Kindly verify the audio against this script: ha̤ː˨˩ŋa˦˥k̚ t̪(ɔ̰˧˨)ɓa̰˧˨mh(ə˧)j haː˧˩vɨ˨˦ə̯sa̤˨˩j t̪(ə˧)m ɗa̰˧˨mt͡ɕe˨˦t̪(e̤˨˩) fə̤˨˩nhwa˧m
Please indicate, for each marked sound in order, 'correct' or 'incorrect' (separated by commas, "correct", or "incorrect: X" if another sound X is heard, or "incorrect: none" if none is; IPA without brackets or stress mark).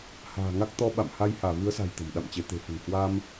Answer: incorrect: ɔ˧, incorrect: a˧, incorrect: ə̤˨˩, correct